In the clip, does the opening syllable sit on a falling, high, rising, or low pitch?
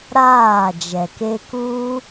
falling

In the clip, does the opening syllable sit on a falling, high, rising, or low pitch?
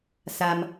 low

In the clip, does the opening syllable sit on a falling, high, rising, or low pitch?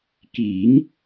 rising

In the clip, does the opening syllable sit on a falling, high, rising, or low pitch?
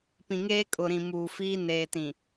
low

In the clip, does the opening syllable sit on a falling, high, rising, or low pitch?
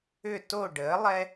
falling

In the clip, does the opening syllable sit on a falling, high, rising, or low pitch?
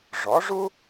rising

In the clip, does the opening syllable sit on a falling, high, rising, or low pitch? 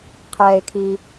low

